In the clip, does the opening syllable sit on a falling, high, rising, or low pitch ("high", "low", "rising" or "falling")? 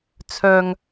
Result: high